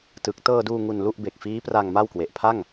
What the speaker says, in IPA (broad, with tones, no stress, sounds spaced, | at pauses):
t ɯ˨˩ k̚ t ɤː˧ d uː˧ ŋ u˧ n l u˥˩ ʔ b e˨˩ k̚ f iː˦˥ p r a˧ ŋ m a˥˩ w k w e˨˩ ʔ pʰ a˥˩ ŋ